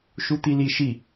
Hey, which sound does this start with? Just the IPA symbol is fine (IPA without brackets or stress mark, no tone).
ʃ